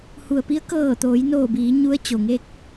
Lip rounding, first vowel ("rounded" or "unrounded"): rounded